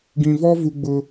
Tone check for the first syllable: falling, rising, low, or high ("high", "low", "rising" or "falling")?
low